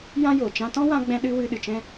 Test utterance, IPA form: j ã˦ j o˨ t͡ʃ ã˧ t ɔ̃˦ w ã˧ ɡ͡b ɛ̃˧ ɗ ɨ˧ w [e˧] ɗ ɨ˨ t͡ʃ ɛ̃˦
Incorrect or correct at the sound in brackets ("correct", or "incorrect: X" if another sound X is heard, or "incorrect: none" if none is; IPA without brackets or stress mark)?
incorrect: ɨ˧